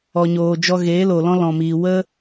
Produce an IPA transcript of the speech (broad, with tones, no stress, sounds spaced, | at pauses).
ɔ˨ ɲ oː˨ d͡ʒ ɔ˧ ɣ eː˨˦ l o˨ l ɔ̃˦ l ɔ̃˨ m iː˨ w ə˦